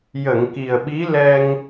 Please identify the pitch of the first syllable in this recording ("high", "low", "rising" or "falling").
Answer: low